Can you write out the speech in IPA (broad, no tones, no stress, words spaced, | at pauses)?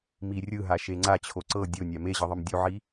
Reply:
mi rʲɯɦa ʃeŋ͡ǀa t͡ɕʰoǀɤ dʲonʲa meʑɯðˤɯm dʲuʕi